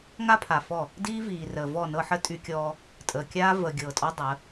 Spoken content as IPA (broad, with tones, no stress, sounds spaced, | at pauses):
ŋ a˦ pʰ a˨ f ɔ˦˨ | d iː˦ v iː˨ r əː˨ v ɔ˦˨ n ɤ˦ ħ ə˦ tʼ y˦ kʲ ɔː˦ | tʼ əː˨ kʲ aː˦ v əː˨ ɡʲ ɤː˨ tʼ ɔ˦ dˤ əː˨˦